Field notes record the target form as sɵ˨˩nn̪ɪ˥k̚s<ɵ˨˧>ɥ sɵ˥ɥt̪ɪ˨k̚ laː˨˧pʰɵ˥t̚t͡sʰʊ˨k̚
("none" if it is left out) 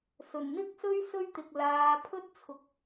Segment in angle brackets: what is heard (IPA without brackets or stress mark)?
ɵ˥